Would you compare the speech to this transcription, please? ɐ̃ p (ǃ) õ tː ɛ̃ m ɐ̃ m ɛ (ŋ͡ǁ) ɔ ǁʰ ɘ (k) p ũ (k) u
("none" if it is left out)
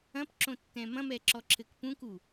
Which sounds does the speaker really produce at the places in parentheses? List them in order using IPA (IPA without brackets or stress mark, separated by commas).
ǁ, ǁ, k, k